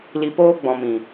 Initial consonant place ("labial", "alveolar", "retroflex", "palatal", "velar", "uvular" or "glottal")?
alveolar